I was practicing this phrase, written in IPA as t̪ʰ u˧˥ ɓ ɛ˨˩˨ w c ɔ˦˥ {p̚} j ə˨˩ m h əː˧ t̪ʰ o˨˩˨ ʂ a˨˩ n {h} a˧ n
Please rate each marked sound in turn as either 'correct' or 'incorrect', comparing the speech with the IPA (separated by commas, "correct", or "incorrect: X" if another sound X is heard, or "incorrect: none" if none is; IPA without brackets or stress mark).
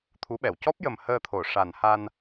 correct, correct